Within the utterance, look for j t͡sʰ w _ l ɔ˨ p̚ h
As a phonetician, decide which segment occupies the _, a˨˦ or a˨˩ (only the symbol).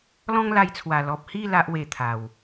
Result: a˨˩